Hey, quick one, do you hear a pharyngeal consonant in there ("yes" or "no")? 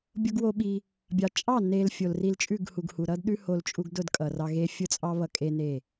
no